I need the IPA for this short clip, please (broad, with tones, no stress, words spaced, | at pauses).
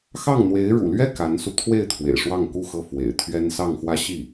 xɑ˥˩ŋn̪we˧˥ɪ̯ ɻṵ˨˩lɥɛ˥˩ ka˧˥nsu˧ t̪ʰwe˥˩ɪ̯ t̪ʰwḛ˨˩ɪ̯ʂwɑ˥˧ŋ ku˥˧xɤ˥˩ fwḛ˨˩ɪ̯t̪ʰɥɛ˥nsɑ˥˧ŋxwä˥˧ ɕi˥˩